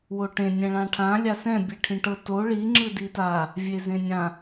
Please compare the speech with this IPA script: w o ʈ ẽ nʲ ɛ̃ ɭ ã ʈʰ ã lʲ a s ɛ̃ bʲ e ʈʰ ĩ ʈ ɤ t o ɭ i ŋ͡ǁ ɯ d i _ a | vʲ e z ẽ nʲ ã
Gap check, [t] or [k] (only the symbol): t